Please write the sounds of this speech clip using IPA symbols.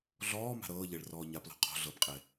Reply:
ɮ ɔː m a̤ ɾ ɤː ʎ e ɭ r ɔː ɲ a p l ɔ̤ qʰ ɔ̤ ɮ ɤ p qʼ e

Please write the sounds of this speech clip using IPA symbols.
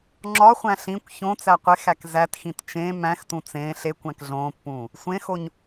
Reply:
ŋ͡ǁ ɒ χʷ æ̃ ɬ ĩ kʷ ç õ t͡s æ qʷ e x æ k z æ t x ĩ t t͡ʃ ẽ m æ̃ x t ũ t͡s ẽː ɬ e kʷ æ̃ k ɮ õː pː ũː | sʷ ẽ x o ɲ

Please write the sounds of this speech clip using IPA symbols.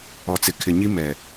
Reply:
ɔ˨ t͡s ɪ˨ kʰ ɪ˨ ɲ i˦ m ɛ˨

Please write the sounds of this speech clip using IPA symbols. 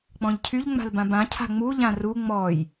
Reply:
k͡p ɔ̃ ʎ cʰ y ʎ ŋ͡m a̤ l b ã b ã cʰ a̤ ŋ͡m u ʎ ã r u ŋ͡m ɔ j

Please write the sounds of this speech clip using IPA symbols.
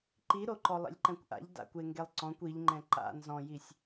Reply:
ǃ i ɾ o ǃ ɔ lˠ ḭ lʲ ǃ ɛ̃ kʷ ʔ a̰ ʎ d a̰ kʷ e ŋ ɡ e lˠ ǀ ɔ̃ kʷ i ʎ ŋ͡ǃ ɛ̃ ǃ a̰ n z ɔ̃ j i sʲ

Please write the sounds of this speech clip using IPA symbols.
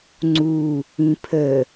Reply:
ŋ͡ǀ u | ĩ pʰ ə

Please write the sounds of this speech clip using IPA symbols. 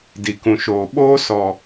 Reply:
d i˨ k ũ˨ ʃ oː˨ ɓ oː˦ s ɔ˨

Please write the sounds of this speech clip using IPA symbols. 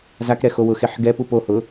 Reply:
z a k ɾ ɛ x o w ʊ x e ħ ɡ ɛ p u p o h ʊ

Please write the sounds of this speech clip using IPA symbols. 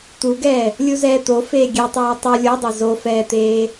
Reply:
t̪ u ɡ ɛː | lʲ u z ɛː t̪ o f eː ɡʲ e tˤ ɑː tˤ u lʲ o dˤ ɛ z o f ɛː t̪ eː

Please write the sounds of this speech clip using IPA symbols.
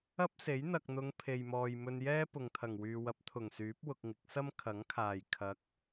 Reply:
ɐ˥ p̚ s e˨˥ j n̪ ɐ˨ k̚ n̪ ʊ˨˧ ŋ pʰ e˨ j m ɔː˨ j m ɵ˧ n j ɛː˥ p ʊ˨ ŋ t̪ʰ ɐ˨˩ ŋ w yː˨ w ɐ˨˥ p̚ t̪ʰ ʊ˨˩ ŋ s yː˨˥ p̚ w ʊ˧ k̚ ŋ ɪ˨˥ k̚ s ɐ˥ m kʰ ɐ˨˥ ŋ kʰ aː˨˩ j kʰ ɐ˨˥ k̚

